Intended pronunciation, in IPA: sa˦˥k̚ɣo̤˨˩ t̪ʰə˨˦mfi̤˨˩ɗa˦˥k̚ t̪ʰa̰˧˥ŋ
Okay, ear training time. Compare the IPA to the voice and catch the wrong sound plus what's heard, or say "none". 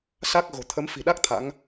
none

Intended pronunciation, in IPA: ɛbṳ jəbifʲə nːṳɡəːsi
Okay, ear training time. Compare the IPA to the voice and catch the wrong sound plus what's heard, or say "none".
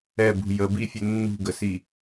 əː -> ə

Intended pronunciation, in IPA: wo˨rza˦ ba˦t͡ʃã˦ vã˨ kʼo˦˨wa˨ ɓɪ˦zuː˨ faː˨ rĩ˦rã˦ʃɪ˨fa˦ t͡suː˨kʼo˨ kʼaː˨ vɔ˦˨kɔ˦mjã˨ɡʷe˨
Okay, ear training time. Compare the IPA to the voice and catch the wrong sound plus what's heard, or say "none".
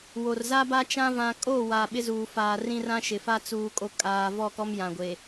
none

